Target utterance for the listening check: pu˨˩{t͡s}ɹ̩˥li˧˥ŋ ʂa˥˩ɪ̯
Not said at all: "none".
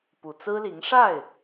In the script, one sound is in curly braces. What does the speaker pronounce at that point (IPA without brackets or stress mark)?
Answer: t͡s